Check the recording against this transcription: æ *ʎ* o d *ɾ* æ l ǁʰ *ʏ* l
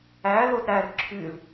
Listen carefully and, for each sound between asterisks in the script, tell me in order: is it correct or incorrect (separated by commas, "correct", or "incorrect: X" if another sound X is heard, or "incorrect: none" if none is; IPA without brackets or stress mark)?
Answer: incorrect: l, correct, incorrect: y